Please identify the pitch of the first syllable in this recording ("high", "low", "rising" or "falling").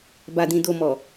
low